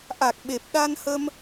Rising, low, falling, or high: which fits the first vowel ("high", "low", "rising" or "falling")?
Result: low